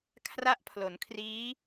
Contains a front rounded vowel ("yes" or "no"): no